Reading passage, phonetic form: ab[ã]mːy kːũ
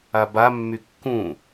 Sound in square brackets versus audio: incorrect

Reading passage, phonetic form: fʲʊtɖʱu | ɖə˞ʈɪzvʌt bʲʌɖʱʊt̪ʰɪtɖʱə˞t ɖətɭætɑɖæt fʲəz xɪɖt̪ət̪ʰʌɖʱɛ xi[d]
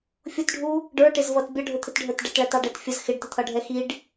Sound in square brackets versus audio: incorrect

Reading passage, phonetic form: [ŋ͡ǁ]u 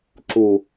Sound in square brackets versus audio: incorrect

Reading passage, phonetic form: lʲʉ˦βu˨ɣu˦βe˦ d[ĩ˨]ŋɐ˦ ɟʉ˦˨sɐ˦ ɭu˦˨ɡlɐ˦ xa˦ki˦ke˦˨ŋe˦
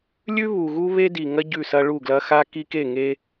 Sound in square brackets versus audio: incorrect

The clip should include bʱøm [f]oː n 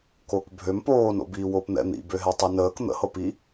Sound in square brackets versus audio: incorrect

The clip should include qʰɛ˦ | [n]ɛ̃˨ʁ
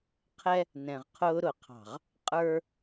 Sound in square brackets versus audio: correct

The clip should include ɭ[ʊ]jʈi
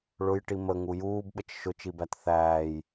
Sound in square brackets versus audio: correct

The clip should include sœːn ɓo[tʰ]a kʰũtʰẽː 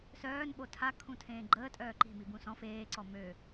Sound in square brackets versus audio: correct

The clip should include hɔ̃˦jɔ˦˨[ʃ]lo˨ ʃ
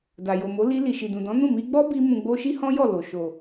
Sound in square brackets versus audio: incorrect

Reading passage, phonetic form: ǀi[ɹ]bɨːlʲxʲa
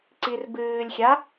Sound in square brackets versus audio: incorrect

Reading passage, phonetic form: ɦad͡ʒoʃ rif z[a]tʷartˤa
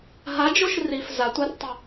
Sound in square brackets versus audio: correct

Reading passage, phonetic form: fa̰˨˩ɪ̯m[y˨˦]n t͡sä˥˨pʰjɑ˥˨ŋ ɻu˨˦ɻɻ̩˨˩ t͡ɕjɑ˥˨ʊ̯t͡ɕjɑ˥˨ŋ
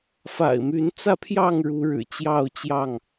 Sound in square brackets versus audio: correct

